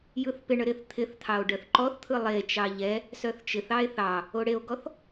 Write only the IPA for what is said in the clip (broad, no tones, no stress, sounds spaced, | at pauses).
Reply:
j ɯ θ p ɪ ɳ ə ɾ ɪ θ t̪ʰ ɪ θ t̪ʰ ɑ o̯ ɖ œ θ ǃ ɔ θ t̪ʰ ɯ lˠ e t͡ʃ ɑ ʎ ɛ | s œ θ t͡ʃ ɪ θ ɑ e̯ θ ɑ | o ɽ e o̯ ɡ ɔ θ